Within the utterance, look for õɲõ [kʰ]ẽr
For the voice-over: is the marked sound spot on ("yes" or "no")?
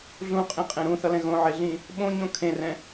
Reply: yes